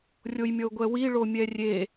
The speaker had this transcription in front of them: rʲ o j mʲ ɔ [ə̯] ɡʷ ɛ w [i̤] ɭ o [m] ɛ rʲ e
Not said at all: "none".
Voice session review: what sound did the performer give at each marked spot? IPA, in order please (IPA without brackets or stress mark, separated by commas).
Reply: ʊ̯, i, mʲ